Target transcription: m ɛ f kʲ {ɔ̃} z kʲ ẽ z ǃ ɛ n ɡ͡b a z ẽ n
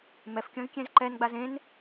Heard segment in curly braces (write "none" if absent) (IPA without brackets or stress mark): õ